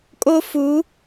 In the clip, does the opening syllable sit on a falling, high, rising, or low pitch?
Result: high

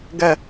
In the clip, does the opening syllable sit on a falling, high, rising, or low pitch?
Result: falling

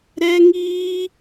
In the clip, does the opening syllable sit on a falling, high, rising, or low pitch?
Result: high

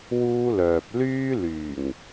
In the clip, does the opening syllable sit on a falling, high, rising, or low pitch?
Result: high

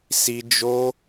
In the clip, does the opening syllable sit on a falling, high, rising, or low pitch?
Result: high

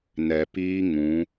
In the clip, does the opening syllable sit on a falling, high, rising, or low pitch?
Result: low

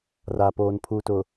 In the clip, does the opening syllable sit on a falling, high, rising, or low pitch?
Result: low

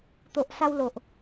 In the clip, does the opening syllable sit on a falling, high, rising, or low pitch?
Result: low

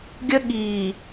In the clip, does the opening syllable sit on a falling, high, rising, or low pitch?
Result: high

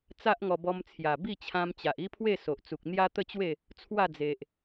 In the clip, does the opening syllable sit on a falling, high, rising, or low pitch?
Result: high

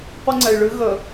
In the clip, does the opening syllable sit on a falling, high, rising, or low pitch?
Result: high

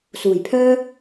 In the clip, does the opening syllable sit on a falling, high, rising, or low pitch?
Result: low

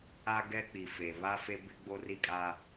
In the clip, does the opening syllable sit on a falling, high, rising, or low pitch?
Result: high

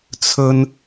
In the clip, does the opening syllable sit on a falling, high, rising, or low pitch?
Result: high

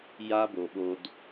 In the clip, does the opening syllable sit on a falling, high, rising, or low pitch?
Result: high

